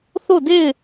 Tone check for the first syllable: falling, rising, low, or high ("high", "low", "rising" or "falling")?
falling